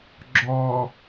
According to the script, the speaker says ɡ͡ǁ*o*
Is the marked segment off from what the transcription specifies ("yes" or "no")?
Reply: yes